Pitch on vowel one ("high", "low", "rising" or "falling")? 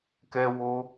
high